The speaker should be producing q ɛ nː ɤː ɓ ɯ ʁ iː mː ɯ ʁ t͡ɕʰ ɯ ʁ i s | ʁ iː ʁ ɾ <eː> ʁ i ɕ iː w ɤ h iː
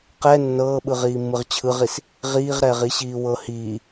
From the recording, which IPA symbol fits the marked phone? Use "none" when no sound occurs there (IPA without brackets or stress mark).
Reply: ɛː